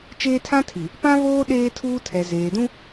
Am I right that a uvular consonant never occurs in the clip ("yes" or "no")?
yes